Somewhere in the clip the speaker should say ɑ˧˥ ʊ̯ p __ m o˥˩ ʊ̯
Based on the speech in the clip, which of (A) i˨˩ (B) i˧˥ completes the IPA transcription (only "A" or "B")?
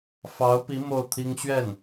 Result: B